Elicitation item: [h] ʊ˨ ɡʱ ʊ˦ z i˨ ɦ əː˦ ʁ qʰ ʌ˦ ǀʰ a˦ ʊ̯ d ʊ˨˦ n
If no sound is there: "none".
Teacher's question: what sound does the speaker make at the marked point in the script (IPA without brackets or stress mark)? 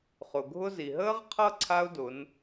χ